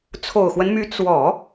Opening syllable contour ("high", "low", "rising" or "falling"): low